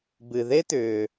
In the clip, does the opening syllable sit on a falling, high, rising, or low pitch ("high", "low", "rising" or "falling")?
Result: low